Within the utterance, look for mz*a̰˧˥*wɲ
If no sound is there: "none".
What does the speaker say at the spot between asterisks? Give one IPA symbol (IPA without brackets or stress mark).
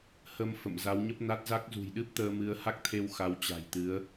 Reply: a˨˦